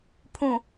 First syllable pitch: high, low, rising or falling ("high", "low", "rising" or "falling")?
low